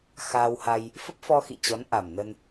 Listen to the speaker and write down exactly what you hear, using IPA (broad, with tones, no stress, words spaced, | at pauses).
xaː˧wha˧j | fə˦˥p̚fɔ˧xḭ˧˨ t͡ɕɔ˨˦nʔa˨˩mnə˧n